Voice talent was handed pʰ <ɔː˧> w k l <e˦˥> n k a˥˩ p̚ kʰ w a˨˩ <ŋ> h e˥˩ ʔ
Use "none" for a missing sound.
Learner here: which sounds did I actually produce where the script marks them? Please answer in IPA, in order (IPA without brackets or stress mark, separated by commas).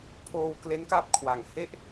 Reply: oː˧, e˦˥, ŋ